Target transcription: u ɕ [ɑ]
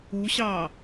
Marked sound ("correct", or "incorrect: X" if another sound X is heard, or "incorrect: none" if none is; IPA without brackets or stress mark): correct